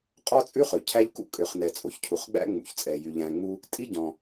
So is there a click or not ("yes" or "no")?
no